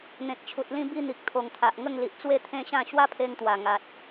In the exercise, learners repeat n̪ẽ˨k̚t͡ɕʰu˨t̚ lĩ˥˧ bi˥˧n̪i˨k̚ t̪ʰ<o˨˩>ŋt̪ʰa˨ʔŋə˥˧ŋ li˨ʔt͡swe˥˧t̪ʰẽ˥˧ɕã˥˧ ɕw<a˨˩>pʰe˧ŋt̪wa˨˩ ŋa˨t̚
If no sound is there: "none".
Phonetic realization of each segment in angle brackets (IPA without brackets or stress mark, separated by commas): o˨˩, a˦